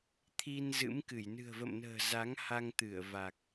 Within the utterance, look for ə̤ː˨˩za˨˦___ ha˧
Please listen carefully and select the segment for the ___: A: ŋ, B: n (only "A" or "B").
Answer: A